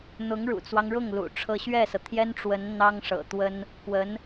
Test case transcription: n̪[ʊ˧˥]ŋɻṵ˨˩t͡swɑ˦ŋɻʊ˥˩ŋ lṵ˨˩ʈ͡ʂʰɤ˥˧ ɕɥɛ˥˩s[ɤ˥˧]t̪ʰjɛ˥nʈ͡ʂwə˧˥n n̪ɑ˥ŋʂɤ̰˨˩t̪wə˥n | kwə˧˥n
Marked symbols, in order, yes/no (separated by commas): yes, no